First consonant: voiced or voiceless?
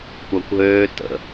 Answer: voiceless